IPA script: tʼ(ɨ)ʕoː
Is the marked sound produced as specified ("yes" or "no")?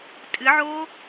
yes